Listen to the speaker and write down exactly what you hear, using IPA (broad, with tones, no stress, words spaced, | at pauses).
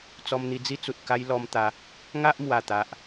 t͡sɔ˧mn̪i˧d͡zi˦t͡su˨t̚ ka˦jlɔ˧mt̪a˧ | ŋa˦ʔmwa˨˩t̪a˨ʔ